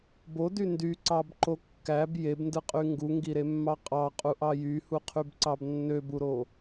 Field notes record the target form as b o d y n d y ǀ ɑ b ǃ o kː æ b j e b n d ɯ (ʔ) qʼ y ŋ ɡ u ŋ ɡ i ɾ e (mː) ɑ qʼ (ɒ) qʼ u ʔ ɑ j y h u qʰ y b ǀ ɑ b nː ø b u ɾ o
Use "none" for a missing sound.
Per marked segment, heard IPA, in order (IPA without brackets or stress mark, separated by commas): none, mː, ɑ